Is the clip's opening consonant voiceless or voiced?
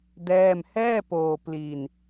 voiced